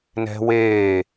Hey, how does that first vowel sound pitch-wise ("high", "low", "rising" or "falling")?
high